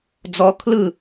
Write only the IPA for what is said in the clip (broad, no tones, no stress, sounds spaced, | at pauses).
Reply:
d͡z ɔ kʰ l ɯ